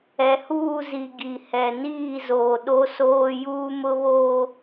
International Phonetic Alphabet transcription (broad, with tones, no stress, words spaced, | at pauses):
ɛ˨huː˦˨zi˨ ɡi˨hɛ˨ niː˦˨zoː˨ ɗo˦soː˦ juː˦mʊ˦βoː˦